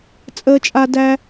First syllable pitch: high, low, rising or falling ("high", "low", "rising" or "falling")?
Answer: high